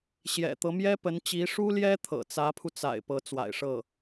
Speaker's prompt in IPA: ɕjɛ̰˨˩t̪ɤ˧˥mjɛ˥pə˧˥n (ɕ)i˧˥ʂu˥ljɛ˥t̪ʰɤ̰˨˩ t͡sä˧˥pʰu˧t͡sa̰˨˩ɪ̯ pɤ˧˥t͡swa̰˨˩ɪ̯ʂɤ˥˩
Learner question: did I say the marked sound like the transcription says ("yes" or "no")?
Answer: no